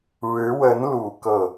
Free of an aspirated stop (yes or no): yes